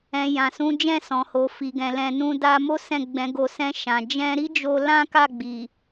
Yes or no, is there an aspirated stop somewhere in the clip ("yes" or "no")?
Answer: no